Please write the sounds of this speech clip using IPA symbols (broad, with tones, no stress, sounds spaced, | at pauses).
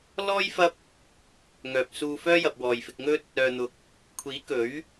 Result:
l ɔː˥ j f ɐ˥ p̚ | ŋ œː˨ p̚ s uː˧ f œː˥ j ɐ˨ p̚ w ɔː˨ j f ɪ˧ k̚ ŋ ɵ˥ t̚ | œː˨ n̪ ʊ˨ k̚ | kʷʰ iː˨˥ k ɵ˨˥ ɥ